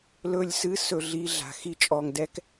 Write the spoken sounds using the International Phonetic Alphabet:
l ɵ˦˨ lʲ s ɨ˦ s ɵ˧ ɮ i˧ ɮ a̤˨ x i˦ t͡ʃʼ ɔ˧ ŋ d ɛ˦ k

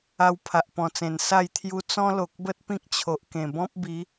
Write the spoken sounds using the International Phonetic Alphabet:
a˧ w pʰ a˨ ʔ p ɔ̃˨˩ t͡s ẽ˨˩ n s a˥˧ j t̪ʰ j u˦ t͡s ɔ̃˦ l o˨ k̚ b ə˦ t̚ p ĩ˦ k̚ t͡ɕʰ o˨ ʔ k ẽ˨˩ b ɔ̃˦ p̚ b i˨˦

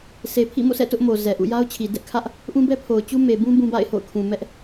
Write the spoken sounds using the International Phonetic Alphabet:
s e˨ pʰ ḭ˦˨ m o̰˦˨ s ɛ̰˦˨ t ʊ˦ ʔ m o˨ z ɛ˨ ʔ ṵ˦˨ j a˦ ʊ̯ t͡ɕʰ i˨ d ɛ˦ ʔ kʰ ä˦ ʔ | ʔ ũ˦ b ɛ˦ pʰ o˨ ʊ̯ t͡ɕ u˦ m e˨ b ũ˦ b ũ˦ b a̰˦˨ ɪ̯ h o̰˦˨ ʊ̯ kʰ ũ˨ m ɛ˦ ʔ

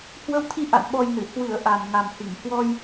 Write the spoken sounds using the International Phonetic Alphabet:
h w ə˧ w t̪ʰ i˧ ʔ a̰˧˨ n ɓ ɔ˧ j n ɨ˧˩ h w ɨ˧˩ ə̯ ʔ a˨˩ n ŋ a˨˩ m h i˧˩ ŋ h w ɔ˧ j

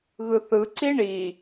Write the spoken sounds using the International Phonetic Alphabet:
ɣ ɯ θ ɯ ǀ i ɳ i

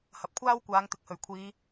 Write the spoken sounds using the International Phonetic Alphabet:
h ɐ˨ p̚ kʷʰ aː˥ w kʷ aː˨˧ ŋ t̪ ɪ˨ k̚ h ɵ˨˩ ɥ kʷʰ iː˨˧

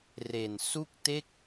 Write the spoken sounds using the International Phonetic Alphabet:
r e˨˩ n s u˥˩ k̚ t e˥˩ k̚

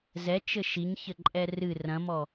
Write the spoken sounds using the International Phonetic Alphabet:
z ɛ t͡ʃ ɘ ʃ i ɲ ç ɘ ǃʼ ɛ r ɨ r ɐ̃ m ɔ

